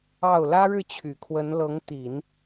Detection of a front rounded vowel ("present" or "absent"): present